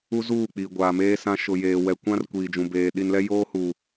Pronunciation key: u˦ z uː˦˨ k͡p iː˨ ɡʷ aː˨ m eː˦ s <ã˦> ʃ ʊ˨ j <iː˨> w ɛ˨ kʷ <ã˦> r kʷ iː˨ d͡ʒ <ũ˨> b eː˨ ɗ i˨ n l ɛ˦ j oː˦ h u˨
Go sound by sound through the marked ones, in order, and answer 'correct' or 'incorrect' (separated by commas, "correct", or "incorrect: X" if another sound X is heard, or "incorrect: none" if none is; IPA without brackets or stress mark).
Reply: correct, incorrect: eː˨, correct, correct